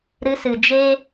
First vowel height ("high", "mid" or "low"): high